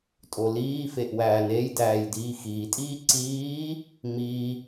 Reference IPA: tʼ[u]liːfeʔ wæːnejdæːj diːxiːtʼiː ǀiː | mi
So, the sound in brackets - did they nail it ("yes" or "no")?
no